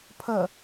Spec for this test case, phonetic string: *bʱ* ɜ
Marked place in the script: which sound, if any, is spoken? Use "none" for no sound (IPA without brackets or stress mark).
pʰ